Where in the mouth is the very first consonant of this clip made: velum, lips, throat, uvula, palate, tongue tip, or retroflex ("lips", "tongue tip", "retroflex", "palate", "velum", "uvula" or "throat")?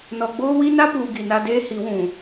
tongue tip